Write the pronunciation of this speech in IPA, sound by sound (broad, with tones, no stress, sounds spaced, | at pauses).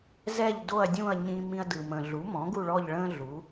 z ɛ˦˨ ʎ d o˦˨ ɐ̯ dʲ ũ˦˨ ɐ̯ ɲ ĩ˦ m ĩ˦ ɐ̯ d ɯ˨ m ə̃˨ ɮ u˩˥ m ɔ̃˩˥ ɡ u˦˨ ɭ ɔ˦˨ ʎ ɭ ə̃˦ ɮ u˩˥